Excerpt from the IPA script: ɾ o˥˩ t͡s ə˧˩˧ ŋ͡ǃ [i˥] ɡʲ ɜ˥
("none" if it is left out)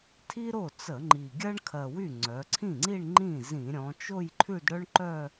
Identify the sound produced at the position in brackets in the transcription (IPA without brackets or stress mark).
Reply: i˨˩